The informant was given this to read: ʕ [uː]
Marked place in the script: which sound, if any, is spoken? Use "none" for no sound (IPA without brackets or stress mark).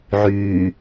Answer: yː